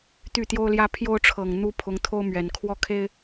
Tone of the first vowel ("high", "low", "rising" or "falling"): falling